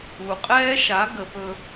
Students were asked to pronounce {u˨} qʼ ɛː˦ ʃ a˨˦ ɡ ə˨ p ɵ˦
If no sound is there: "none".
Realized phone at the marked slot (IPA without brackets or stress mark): u˨